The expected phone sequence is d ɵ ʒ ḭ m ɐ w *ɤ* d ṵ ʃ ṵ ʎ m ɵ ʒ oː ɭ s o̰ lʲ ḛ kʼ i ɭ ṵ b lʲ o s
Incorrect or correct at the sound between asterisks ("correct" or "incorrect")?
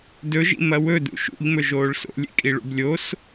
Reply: incorrect